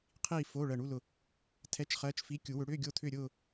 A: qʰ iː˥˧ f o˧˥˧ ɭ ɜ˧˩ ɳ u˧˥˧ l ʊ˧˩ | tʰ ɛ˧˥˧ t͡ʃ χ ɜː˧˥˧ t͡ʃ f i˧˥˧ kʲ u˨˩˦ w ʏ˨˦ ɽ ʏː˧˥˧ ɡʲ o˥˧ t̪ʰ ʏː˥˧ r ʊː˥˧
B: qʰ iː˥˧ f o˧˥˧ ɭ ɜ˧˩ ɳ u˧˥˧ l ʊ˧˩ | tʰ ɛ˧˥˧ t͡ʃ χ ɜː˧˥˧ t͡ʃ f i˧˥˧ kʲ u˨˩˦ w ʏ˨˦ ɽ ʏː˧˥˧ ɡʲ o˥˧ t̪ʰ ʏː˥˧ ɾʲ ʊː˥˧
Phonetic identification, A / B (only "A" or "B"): B